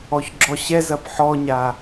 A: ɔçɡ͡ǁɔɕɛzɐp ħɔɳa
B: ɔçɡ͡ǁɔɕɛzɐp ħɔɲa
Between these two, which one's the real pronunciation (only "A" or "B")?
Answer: B